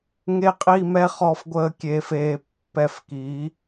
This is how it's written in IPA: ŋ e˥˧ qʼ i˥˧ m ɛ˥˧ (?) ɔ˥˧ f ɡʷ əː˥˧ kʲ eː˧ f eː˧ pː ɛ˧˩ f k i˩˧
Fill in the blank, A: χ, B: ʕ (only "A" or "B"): A